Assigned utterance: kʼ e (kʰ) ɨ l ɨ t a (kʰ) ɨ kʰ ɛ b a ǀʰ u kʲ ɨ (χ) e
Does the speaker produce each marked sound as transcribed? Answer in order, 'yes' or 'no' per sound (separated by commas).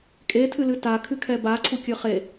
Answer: no, yes, yes